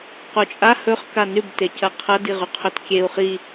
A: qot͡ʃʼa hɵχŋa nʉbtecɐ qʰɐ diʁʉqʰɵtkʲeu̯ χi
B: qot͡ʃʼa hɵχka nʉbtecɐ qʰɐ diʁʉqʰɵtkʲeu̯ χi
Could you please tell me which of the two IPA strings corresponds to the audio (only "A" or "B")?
B